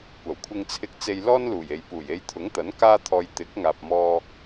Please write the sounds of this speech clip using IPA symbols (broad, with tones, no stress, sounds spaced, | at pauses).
kʷ ɐ˨˩ w kʷʰ ɪ˧ ŋ t͡sʰ ɪ˧ k̚ t͡s e˧ j l ɔː˥ n l uː˨˩ j e˨ j p uː˨˩ j e˧ j t̪ʰ ʊ˨˥ ŋ t̪ ɐ˨˥ n k aː˥ t̪ʰ ɔː˧ j t̪ ɪ˨˥ k̚ ŋ aː˨ p̚ m ɔː˧